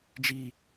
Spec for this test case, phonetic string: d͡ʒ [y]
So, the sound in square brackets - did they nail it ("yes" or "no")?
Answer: no